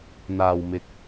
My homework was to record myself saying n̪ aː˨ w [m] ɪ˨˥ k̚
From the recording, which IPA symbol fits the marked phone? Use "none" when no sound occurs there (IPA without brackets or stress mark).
m